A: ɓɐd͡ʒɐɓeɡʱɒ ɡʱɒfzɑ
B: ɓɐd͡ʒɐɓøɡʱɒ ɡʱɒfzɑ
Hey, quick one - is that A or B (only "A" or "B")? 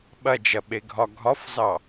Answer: A